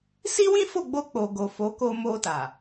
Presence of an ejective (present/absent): absent